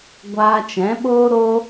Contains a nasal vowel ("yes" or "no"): yes